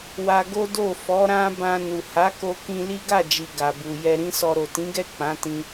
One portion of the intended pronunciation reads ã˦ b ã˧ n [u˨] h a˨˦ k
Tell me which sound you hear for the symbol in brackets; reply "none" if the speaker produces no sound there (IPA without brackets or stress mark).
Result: u˨